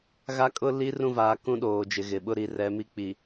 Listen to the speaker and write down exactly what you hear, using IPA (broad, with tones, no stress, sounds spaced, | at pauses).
ɣ a˦ kʼ ʊ˦ l i˦ r ũ˦˨ v aː˨ k ũ˦ ɗ oː˨ d͡ʒ ɪ˨ ɣ ɪ˨ ɓ ʊ˦ ɾ i˨ r ɛ˨˦ m i˦ k͡p i˨